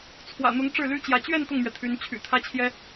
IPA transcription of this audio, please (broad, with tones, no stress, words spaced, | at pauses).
t͡sʰwä̰˨˩n̪ʊ˧˥ŋ ʈ͡ʂɻ̩˥˩ly˥t͡ɕjä˧˥ t͡ɕɥɛ˥˧n t̪ʊ˥˩ŋmɥɛ˩ t̪ʰy˧˥nt͡ɕʰy̰˨˩ t̪ʰä˥t͡ɕʰjɛ˥